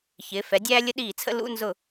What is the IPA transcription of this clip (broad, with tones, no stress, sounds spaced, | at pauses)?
ç ɪː˩˧˩ f ɛ˩˥ dʲ æː˦ lʲ ə˦ ɗ iː˧˩˧ t͡sʰ ə̰˦˨ l ṵ˦˨ n z ʊ˧˩˧